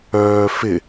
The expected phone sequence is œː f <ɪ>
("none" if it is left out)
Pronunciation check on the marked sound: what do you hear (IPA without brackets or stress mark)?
ɪ